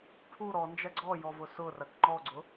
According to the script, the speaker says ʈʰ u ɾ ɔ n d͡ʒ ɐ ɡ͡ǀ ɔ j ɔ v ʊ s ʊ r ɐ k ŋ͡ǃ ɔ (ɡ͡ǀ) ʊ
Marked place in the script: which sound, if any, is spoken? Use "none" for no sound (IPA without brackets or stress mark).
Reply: ɡ͡ǀ